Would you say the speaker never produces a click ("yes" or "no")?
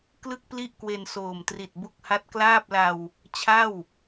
yes